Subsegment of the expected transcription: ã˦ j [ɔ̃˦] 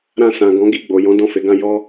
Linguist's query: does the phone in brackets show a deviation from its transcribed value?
yes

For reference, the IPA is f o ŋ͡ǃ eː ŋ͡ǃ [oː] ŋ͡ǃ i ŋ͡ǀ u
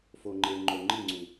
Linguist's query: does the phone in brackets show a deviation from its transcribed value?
yes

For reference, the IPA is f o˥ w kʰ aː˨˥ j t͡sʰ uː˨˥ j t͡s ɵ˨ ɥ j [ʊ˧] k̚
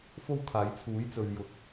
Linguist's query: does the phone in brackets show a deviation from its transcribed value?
no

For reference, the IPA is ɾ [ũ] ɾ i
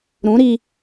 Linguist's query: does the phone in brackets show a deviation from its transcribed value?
no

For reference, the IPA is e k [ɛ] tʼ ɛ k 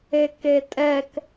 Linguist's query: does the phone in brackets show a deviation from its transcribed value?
yes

